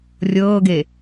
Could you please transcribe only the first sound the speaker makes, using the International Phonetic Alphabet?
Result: rʲ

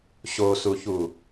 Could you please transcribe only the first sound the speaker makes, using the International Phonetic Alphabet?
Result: ɕ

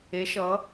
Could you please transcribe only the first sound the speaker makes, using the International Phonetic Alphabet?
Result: e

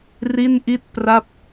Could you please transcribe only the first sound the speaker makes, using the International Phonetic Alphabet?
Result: r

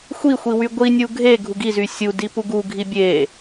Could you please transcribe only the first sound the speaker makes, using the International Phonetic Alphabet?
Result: xʷ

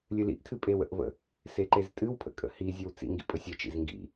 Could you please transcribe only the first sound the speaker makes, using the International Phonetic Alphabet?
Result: lʲ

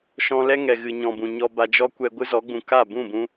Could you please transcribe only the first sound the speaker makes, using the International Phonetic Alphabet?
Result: ʃ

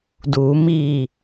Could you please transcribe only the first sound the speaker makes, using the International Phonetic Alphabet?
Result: d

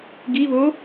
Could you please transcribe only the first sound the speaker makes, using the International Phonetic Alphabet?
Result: ɡ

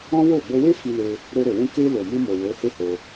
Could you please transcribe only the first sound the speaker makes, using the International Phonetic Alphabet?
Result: ɔ̃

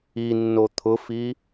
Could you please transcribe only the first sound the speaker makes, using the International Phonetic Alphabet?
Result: i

